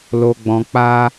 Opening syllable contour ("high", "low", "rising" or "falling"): low